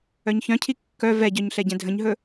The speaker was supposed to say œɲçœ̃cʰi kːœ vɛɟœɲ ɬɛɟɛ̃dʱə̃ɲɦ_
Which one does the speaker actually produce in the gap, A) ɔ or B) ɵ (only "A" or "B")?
B